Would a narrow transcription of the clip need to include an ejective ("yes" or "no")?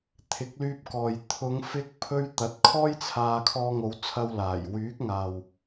no